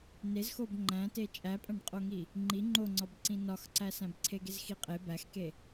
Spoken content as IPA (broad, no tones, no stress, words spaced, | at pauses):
nezxob ŋ͡ǃæ̃te t͡ʃʼæpʼæ̃ɖqʼoŋi | ŋ͡ǃi ŋ͡ǃoŋ͡ǀɒbǀĩ nɒxǀæsæ̃b ǀʰeɡezxiqʼe bæxke